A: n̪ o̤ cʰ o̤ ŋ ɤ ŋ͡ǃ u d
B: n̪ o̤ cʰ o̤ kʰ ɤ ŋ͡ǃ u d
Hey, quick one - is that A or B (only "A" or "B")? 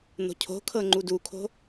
B